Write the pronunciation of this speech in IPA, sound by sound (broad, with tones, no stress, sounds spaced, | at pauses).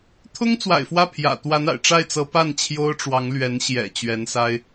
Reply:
t̪ʰ ʊ˥ ŋ t͡s w a̰˨˩ ɪ̯ f w ä˥˩ pʰ j ä̰˨˩ t̪ w a˧˥ n a̰˨˩ ɪ̯ ʈ͡ʂ a˥˩ ɪ̯ t͡s ɤ˧˥ p a˥˩ n t͡ɕʰ j o˥ ʊ̯ ʈ͡ʂ w ɑ˧˥ ŋ l ɥ ɛ˧˥ n ɕ j ɛ̰˨˩ t͡ɕ ɥ ɛ˧˥ n s a˥ ɪ̯